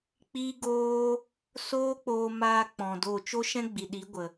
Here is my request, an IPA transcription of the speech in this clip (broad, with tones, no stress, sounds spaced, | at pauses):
k͡p i˦ ɡ oː˦ | s oː˦ k͡p oː˧ m aː˧ k͡p ɔ̃˨ d o˦˨ t͡ʃ o˦ ʃ ɛ̃˦ ɡ͡b i˨ ɗ i˨˦ ɡʷ ə˨